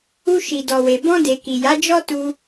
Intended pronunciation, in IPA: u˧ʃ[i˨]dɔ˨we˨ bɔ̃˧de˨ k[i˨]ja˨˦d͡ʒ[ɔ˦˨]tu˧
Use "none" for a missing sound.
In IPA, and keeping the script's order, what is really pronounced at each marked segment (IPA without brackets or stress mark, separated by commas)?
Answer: i˨, i˨, ɔ˦